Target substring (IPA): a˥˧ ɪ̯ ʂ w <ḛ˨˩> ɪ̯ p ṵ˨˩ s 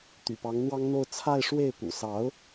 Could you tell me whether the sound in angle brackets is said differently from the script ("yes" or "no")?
yes